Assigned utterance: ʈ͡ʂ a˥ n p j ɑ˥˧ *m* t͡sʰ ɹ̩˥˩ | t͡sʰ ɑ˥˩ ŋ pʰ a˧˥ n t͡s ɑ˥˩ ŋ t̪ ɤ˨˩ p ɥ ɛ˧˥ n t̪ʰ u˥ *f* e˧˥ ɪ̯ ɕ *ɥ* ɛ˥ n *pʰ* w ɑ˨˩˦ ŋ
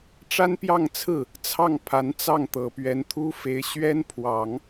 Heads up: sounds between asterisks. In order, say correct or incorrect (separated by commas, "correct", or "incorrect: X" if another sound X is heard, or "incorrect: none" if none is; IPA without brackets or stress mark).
incorrect: ŋ, correct, correct, correct